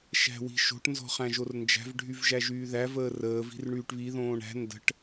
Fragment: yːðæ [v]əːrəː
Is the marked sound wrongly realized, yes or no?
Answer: no